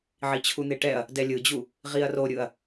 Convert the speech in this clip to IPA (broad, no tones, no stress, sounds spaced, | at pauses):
ʕ i t͡ɕʰ u n̪ e ʈ ɛ ɐ̯ | d ɛ lʲ ɯ d͡ʑ u | ʁ i ɐ̯ r o ɾʲ ɯ ɐ̯